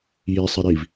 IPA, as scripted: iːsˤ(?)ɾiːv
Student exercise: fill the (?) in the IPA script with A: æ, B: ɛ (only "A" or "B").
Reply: B